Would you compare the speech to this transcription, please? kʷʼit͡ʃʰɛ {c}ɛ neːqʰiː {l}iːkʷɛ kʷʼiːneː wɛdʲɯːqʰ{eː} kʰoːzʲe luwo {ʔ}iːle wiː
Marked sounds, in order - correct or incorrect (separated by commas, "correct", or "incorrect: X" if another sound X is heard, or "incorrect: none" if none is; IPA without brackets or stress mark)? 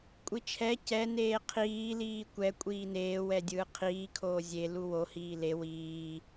correct, correct, incorrect: iː, incorrect: h